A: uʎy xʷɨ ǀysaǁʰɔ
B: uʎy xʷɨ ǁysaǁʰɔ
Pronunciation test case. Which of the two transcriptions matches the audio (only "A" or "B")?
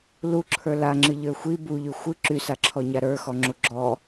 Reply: B